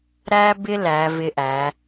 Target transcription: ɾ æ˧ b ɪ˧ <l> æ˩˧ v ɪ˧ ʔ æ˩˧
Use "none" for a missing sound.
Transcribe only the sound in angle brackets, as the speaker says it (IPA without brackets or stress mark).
l